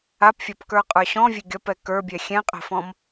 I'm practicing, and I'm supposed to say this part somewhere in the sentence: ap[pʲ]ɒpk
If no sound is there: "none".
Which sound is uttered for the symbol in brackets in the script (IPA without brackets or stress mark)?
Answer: fʲ